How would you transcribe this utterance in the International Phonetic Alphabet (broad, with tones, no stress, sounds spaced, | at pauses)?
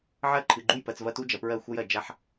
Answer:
ʕ ɜ˦˨ ǃʰ ɨ˨ ɡ͡ǃ u˦˨ j p ɜ˨ t͡s v ɐ˦ t u˦ d͡ʒ ɐ˨ p ɹ ɜ˦˨ xʷ ɐ˦ j ɜ˨ d͡ʒ a˦ ħ